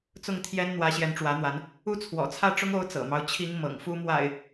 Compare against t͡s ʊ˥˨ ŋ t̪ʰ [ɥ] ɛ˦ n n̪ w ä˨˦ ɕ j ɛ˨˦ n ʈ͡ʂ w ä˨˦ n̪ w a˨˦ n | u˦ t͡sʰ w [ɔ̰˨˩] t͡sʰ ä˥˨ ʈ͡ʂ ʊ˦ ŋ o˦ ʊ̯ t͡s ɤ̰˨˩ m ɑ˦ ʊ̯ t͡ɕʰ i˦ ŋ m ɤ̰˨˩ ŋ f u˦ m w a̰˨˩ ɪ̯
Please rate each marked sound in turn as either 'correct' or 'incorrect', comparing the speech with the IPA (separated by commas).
incorrect, correct